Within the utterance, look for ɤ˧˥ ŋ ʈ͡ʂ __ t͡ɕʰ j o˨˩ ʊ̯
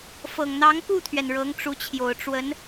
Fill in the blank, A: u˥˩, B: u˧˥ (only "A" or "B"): B